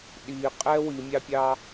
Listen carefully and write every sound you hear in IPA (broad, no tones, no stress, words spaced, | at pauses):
ɗiqʼɛ wimʲɑpʲɑ